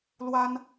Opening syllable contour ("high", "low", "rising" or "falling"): high